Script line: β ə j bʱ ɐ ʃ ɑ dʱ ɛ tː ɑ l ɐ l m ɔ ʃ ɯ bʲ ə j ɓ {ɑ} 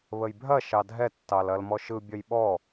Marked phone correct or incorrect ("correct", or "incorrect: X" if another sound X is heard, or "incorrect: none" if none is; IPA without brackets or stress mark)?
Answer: incorrect: ɔ